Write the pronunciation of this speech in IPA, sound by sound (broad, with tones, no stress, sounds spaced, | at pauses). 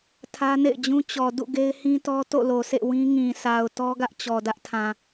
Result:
tʰ ä˦ n ḛ˦˨ ɪ̯ d͡ʑ ũ˦ t͡ɕ ɔ˨ d ṵ˦˨ ɡ e˦ ɪ̯ h ĩ˦ t ɔ˦ t o̰˦˨ l o˨ sʰ ḛ˦˨ w ĩ˦ ŋ ĩ˨ s a˨ ʊ̯ t ɔ˦ ɡ ä˦ ʔ t͡ɕ ɔ˨ d ä˦ ʔ tʰ ã˨